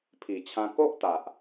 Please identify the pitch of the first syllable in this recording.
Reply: low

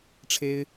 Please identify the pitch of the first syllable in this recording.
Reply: high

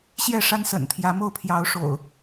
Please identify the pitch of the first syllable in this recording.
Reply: falling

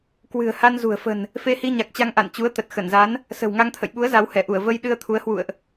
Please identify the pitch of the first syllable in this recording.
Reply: low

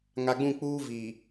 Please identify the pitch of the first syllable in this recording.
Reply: low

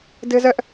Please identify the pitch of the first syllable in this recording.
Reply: high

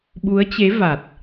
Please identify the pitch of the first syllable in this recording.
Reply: rising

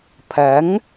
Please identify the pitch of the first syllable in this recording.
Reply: rising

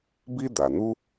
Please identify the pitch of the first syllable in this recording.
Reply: high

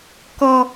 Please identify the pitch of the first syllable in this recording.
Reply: high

